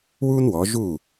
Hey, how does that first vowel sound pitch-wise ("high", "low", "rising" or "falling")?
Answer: high